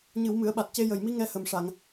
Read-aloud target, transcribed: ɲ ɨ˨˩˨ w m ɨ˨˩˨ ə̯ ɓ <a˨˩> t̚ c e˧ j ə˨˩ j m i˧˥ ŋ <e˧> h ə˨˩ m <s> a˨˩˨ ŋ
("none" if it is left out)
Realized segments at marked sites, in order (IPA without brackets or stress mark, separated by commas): a˨˩, ɛ˧, ʂ